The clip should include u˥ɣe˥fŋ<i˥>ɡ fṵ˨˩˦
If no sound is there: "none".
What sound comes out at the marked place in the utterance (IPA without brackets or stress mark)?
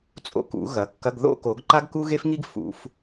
i˥